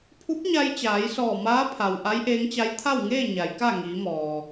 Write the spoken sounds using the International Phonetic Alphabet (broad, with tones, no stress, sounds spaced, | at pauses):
pʰ u˧˥ p̚ ɲ a˧ j t͡ɕ aː˩˧ j s ɔː˧˩ m aː˧˥ pʰ a˩ w ʔ a˧˥ j ʔ eː˧˥ ŋ t͡ɕ a˧˥ j t̪ʰ a˥˨ w ŋ eː˥˨ ɲ a˩˧ j k a˥˨ ŋ iː˩˧ m ɔː˩